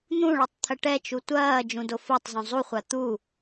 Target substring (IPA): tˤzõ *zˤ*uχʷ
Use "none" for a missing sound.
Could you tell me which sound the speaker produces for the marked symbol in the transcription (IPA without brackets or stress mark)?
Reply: zˤ